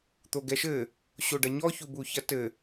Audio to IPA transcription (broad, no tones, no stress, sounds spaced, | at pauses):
t̪ o ɡ ɛ ʃ ɘ | ɕ o ɖ ɐ ɲ ɔ ç u b u ç ɐ t ɘ